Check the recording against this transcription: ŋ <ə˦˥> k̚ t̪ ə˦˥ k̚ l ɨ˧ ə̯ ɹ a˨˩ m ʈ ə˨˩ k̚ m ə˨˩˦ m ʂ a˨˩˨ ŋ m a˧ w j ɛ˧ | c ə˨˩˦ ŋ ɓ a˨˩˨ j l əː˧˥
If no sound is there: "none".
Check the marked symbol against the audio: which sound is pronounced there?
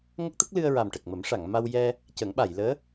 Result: ə˦˥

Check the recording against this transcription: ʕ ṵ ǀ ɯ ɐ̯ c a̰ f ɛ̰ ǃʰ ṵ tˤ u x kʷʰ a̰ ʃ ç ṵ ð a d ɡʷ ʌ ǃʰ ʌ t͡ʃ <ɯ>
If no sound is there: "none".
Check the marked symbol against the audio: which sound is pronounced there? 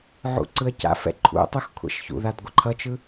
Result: ɯ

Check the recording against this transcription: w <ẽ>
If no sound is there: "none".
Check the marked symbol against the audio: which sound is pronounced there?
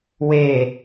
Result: e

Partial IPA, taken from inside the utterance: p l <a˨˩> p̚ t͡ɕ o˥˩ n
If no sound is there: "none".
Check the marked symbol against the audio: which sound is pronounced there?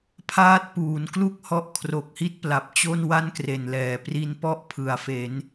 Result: a˨˩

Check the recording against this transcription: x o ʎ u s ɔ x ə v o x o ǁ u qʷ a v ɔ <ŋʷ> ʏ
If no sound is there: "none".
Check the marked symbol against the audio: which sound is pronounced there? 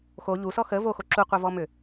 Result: m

